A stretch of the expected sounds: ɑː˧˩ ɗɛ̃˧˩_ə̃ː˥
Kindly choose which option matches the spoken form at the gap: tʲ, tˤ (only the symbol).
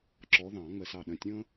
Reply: tʲ